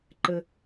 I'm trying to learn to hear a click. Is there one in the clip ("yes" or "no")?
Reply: yes